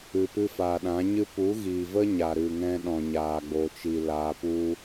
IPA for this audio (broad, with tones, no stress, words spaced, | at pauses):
ɨ˨pɨ˧faː˨ ɗã˨˦ɲɨ˦ pu˨˦ɣiː˨və˦ ɲa˨ɾɨ˨ŋɛ̃˧ ɗɔ̃˨ɲaː˨ ɡ͡bo˨t͡ʃi˨ laː˧pu˦